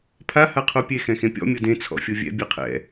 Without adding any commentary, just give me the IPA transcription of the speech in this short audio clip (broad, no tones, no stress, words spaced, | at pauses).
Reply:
pʰa haqʰopʲe xɛ̃xẽpʲɔ̰ mʲɤdẽ t͡sʰɔ̰fʲovʲɛ̰ bʲeqʰɛ̰